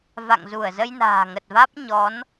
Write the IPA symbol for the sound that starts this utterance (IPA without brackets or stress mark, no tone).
v